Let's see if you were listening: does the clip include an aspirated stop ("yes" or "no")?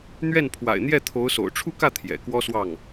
yes